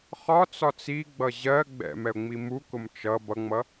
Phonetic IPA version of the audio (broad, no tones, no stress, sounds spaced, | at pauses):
χ ɒ t͡s ɒ t͡s i ɡ͡b ʌ ʑ ɜ ɡ͡b ɛ̰ m ɛ ʊ̯ ŋ͡m i m u k ʊ m t͡ʃ ʌ b ʌ ŋ͡m ʌ